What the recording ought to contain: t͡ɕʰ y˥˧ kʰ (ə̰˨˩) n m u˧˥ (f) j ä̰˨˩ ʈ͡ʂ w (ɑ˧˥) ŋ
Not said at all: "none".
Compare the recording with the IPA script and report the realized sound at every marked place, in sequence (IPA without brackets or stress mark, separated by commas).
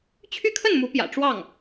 ə˥˩, p, ɑ˥˩